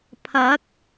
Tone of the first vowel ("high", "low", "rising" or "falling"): rising